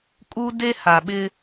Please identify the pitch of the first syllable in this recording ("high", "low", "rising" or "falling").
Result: high